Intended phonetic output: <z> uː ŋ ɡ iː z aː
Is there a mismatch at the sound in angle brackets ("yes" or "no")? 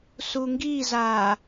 yes